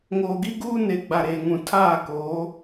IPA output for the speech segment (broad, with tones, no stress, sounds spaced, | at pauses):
ŋ oː˨ ɡ i˦ ɡ uː˦ n e˨ ɡ͡b a˨ ɾ eː˨ ŋ ũ˨ tʰ aː˦˨ k oː˨˦